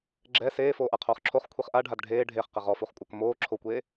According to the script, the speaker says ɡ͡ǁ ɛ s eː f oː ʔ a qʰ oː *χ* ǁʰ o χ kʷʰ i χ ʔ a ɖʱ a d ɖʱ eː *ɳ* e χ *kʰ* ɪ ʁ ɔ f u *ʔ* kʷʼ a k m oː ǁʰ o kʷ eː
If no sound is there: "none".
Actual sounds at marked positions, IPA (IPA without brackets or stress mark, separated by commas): χ, ɖʱ, q, χ